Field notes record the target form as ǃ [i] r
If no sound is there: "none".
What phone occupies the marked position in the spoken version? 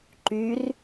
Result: y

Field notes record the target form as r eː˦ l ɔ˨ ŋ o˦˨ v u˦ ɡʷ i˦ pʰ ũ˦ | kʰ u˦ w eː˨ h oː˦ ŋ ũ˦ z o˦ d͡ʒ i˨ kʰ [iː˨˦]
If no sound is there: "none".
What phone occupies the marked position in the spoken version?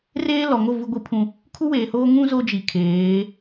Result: eː˨˦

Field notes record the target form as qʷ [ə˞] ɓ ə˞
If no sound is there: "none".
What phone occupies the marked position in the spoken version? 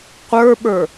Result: ə˞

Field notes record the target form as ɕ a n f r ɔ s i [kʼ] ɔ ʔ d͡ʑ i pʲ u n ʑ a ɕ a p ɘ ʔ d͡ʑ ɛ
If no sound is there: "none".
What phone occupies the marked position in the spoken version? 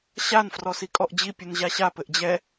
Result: kʼ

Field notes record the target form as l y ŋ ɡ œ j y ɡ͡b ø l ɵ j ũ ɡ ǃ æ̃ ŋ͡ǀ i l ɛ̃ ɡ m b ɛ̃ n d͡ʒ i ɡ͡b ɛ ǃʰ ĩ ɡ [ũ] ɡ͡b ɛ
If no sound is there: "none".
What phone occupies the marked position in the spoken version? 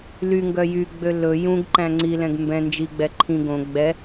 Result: õ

